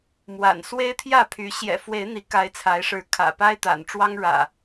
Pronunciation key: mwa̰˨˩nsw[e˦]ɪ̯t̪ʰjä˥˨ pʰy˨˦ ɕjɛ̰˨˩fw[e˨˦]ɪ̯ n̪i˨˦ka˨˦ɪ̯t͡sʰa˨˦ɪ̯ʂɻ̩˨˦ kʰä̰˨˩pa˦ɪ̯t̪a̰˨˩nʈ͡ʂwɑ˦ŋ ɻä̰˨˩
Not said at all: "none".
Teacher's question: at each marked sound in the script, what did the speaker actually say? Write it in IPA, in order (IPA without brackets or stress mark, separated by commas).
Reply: e˦, e˨˦